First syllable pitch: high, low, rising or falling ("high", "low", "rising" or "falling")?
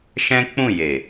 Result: high